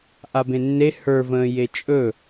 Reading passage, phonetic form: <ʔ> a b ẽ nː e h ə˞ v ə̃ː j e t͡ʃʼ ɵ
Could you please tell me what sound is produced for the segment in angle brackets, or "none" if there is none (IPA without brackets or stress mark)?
ʔ